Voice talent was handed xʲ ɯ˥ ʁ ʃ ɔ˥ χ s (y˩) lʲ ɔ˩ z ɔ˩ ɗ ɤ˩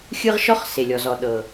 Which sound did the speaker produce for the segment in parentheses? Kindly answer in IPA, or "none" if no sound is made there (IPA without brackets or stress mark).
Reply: e˩